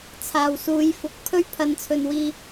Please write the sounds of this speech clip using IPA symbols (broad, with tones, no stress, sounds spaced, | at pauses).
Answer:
t͡sʰ aː˨ w s uː˨˧ j f ʊ˨˥ k̚ pʰ ɵ˥ ɥ pʰ ɐ˨˧ n t͡sʰ ɵ˨ n w iː˧